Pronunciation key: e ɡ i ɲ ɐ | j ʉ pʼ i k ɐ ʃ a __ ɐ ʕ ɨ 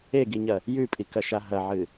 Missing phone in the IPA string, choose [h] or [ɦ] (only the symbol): ɦ